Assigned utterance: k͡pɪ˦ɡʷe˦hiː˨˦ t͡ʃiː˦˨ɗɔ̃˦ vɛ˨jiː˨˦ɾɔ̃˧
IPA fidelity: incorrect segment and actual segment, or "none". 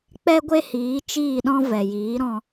ɪ˦ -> ɛ˦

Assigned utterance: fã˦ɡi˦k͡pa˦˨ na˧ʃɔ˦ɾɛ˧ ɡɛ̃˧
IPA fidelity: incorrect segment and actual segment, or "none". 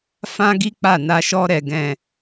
none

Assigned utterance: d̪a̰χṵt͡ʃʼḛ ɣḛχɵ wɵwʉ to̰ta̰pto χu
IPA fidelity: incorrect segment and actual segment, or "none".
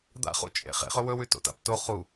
ɣ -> χ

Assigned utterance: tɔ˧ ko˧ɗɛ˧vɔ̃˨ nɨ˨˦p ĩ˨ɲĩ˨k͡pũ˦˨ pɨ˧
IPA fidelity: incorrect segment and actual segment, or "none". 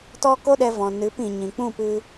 o˧ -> o˦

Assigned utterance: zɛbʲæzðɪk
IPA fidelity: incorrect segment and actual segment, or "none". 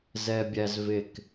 ð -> v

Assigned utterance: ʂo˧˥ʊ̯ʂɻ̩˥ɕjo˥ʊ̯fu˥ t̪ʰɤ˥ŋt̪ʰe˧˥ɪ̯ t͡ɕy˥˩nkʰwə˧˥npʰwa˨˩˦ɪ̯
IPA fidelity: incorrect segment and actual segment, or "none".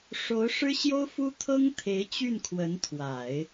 pʰ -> t̪ʰ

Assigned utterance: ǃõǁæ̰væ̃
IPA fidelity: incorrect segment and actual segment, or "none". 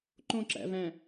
none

